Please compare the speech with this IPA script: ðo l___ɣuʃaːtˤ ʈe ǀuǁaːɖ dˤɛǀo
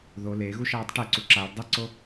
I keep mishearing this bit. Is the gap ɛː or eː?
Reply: eː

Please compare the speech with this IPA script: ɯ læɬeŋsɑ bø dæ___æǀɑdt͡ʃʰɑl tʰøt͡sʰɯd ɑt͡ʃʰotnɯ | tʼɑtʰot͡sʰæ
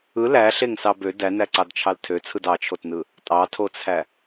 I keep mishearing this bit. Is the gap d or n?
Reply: n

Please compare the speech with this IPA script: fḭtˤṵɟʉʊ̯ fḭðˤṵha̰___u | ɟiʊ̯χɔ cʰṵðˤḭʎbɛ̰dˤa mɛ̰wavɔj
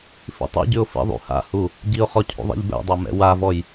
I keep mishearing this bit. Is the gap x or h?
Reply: h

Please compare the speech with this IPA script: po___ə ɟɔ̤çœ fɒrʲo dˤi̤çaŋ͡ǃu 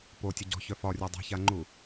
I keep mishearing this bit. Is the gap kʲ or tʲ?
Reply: tʲ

